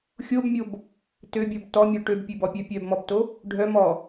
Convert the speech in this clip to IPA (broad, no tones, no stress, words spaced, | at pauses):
xʲobmʲob | tøbʲɔb tɔmʲɔ ʈøbpʲøbɔpʲœ pʲœbmɔbto | ɖʱœ mɔ